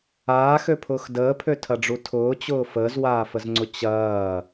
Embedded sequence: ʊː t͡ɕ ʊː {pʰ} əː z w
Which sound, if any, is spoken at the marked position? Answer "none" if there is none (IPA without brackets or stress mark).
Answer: f